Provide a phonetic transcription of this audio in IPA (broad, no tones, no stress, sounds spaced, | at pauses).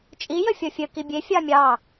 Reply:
t͡ʃʼ i j ə fʲ ɔ fʲ ə k i bʲ e fʲ ɑ mʲ ɑ